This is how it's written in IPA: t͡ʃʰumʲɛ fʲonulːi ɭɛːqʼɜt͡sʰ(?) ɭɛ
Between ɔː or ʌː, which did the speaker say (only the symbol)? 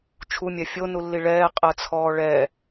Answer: ɔː